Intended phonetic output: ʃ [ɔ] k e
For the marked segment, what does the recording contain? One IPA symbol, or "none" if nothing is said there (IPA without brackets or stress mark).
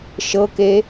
ɤ